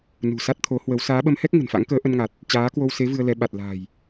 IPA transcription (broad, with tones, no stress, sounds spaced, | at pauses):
n ṳ˨˩ s a˦˥ t̚ t̪ʰ o˨˦ h w ə˨˦ w s aː˨˦ ɓ ə˨˦ m h ɛ˦˥ k̚ ŋ ə̤˨˩ n f a̰˧˥ ŋ k əː˨˦ ʔ ə˧ n ŋ a˨˩ t̚ | t͡ɕ aː˨˦ k w o˧ w s e˨˦ v ɨ˧ ə̯ l ɛ˨˦ ɓ a˨˩ t̚ l a̤ː˨˩ j